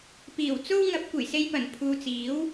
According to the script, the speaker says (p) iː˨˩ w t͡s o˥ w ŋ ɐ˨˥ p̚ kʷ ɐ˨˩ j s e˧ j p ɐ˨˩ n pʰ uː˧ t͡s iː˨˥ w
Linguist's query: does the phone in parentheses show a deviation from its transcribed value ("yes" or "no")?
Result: no